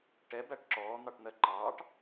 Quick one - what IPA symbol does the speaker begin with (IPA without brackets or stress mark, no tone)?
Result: ʈ